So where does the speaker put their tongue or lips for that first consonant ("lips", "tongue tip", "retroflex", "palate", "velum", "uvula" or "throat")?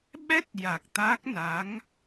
lips